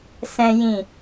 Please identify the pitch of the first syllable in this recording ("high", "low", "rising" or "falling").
high